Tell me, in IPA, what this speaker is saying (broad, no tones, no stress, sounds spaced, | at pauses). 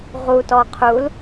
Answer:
ʁ u t ɔ qʰ u l